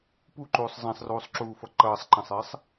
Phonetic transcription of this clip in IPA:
p u ǃ uː sˤ z ɛ̃ sˤ r uː sˤ ǁ uː f ʌ ǃ ʌː sˤ ǃ ɛ̃ sˤ ɪː sˤ

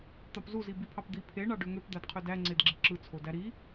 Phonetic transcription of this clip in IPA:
t̪ ɑ p z u z i b i pʰ ɑ p d̪ i pʰ e ɳ ɑ ɖ ø ŋ ø p d̪ æ d qʰ ø d æ ŋ͡ǀ e d ɡ͡ǁ i ǁ ɯ t͡sʰ o d æ ɾ i

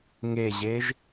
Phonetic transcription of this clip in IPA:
ŋ e ʑ e ʒ

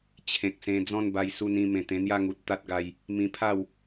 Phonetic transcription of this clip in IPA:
t͡ɕʰ ẽ˨ k̚ s ẽ˧ d͡z ɔ̃˥˧ n b a˧ j s u˧ n ĩ˧ m ẽ˨˩ t̪ ẽ˧ n̪ j a˥˧ ŋ u˨ t̚ t̪ a˦ t̚ ɡ a˧ j | m ĩ˧ pʰ a˥˧ w

